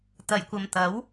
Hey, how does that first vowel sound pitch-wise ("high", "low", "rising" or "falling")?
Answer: low